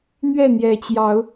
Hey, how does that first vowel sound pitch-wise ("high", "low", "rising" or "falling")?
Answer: falling